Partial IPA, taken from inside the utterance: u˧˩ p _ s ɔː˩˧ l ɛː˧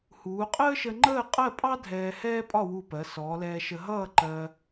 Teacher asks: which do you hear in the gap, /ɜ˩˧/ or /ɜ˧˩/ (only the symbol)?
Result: ɜ˩˧